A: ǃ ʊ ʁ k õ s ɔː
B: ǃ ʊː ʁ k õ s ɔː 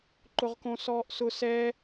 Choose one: A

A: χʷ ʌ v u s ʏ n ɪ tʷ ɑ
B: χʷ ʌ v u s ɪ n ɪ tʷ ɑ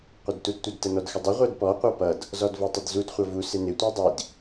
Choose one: B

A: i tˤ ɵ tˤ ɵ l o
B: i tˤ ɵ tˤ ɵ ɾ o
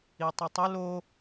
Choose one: A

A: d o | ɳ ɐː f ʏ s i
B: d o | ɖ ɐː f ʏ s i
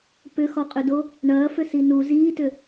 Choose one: A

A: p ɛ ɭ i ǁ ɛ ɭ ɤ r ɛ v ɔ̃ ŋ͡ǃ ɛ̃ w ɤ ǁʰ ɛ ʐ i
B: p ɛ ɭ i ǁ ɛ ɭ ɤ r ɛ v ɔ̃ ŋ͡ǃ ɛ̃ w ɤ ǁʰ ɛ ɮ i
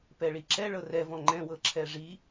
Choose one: A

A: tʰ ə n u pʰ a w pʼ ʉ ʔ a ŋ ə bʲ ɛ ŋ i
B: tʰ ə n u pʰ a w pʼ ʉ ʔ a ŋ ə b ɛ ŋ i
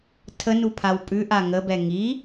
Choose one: B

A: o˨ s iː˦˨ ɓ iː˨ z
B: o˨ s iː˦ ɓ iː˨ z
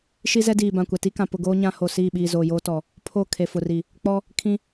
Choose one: A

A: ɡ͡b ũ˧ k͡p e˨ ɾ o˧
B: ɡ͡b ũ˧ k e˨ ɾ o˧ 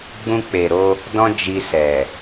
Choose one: A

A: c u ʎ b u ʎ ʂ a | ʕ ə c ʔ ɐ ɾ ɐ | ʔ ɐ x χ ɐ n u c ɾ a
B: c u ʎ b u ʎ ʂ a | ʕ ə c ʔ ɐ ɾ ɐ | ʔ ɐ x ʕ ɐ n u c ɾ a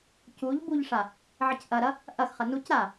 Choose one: A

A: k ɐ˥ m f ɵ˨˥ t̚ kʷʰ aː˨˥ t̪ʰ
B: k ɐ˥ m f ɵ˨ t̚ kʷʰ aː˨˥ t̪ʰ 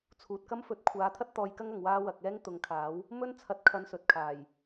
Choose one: A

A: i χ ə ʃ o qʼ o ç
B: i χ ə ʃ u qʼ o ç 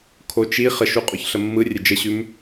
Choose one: B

